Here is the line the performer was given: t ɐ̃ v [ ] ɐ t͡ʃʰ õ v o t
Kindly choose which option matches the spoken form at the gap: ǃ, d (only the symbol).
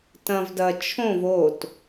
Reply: d